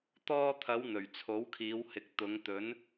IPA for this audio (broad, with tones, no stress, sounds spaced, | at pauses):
t̪ ɔː˧ t̪ʰ ɐ˨˧ w n̪ ɵ˨˩ ɥ t͡sʰ o˨˥ w kʰ iː˨˧ w h ɪ˨ k̚ t̪ ʊ˨˧ ŋ t̪ ɵ˨˧ n